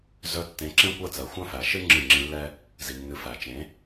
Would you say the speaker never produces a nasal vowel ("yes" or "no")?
no